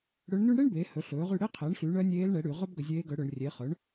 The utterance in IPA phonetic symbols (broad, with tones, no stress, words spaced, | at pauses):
ɽɵ˧˥ɳny˥ɳ ɽe˥ɳ beː˩˥hɵ˩˥ ɬɵː˩˥ʁy˦˨ ɽe˥qʰɛ˩˥ɳ ɬy˩˥ɳœ˧˥nʲeː˧˥l ɳɛ˩˥ɽy˧˩˧ ʁœ˥b ɡɵ˧˩˧zʲeː˧˥ɡœ˩˥ɽɵ˧˩˧ɳ rʲe˩˥χœ˩˥ɳ